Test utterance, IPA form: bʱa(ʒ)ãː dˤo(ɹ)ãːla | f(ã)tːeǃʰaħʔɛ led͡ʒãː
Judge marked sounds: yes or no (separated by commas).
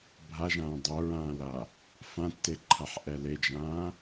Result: yes, yes, yes